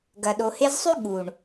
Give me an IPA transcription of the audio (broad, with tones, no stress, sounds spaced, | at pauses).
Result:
ɡ ɐ˨ ɗ o˨ h e˧ z sˤ ʉ˦ ɠ u˨ ɳ